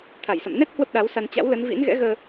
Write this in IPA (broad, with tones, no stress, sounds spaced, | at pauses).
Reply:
t̪ʰ a˧˩ j s ə̰˧˨ m n ɛ˦˥ t̚ h w ə˦˥ p̚ ɗ a˨˦ w s a˧ n t͡ɕ a̰˧˥ w l ə˨˦ n v ḭ˧˥ n ɣ ɛ̰˧˥ ɣ əː˧